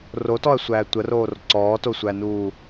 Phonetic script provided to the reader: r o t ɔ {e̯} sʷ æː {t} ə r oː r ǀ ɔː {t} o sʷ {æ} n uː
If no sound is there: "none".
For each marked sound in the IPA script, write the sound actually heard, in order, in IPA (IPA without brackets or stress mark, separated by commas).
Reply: ɐ̯, tʷ, t, æ